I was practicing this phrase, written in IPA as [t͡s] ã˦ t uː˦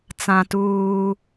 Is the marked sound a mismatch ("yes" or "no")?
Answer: no